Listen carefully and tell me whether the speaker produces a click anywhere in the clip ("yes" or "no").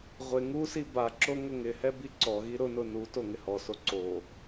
yes